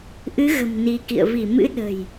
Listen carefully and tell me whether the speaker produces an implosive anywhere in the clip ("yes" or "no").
yes